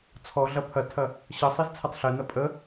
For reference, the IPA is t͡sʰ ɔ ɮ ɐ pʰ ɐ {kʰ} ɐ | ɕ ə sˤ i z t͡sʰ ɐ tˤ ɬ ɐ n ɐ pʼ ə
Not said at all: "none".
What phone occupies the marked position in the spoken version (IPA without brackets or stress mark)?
tʰ